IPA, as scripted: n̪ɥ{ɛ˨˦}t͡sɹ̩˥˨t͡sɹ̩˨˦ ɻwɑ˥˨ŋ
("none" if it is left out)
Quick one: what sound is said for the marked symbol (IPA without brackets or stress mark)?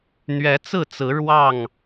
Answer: ɛ˨˦